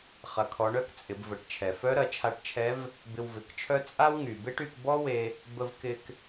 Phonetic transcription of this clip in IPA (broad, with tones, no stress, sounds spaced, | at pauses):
χ ɐ˩˧ kʰ ɔ˩˧ ɳ œ˧˥ k t͡sʼ ɪ˩˧ b v ə˩˧ ʈ t͡ʃʰ ɛ˩ f œ˧˥ ɾ ɐ˩˧ t͡ʃʰ a˧ ʈ t͡ʃʰ ɛ˧˥ v | b ɪ˧ w v ɪ˩˧ k t͡ʃʰ œ˥ t͡sʼ a˥ w ŋ y˩ b e˥ ʈ y˧ k b ɔ˥ w e˧ | b ə˧ v k ɪ˧ k